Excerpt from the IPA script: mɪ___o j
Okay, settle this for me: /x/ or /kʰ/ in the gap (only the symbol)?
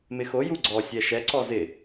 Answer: x